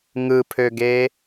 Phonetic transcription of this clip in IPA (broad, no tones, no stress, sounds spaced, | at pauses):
ŋ ɯ pʰ ø ɡ e